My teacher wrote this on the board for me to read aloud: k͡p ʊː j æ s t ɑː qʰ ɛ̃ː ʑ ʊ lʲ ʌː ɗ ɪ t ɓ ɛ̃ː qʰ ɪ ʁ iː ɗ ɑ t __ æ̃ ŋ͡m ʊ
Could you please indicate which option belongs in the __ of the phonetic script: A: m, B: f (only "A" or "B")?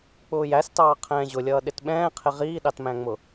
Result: A